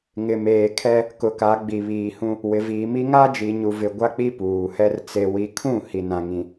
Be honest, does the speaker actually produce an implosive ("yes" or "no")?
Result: no